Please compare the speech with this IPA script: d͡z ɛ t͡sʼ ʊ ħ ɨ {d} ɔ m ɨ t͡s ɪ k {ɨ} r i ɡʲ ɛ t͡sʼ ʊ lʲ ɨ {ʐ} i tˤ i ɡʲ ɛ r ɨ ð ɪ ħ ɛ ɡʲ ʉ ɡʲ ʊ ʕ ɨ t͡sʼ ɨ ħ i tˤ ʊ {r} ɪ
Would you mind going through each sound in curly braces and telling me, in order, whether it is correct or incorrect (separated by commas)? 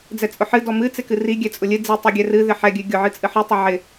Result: correct, correct, incorrect, incorrect